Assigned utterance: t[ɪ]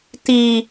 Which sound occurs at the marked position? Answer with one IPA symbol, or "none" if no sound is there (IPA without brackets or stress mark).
i